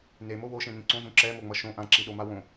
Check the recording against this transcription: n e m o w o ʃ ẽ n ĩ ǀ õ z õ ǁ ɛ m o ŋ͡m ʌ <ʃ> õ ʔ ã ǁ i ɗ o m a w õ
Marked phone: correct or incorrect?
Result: correct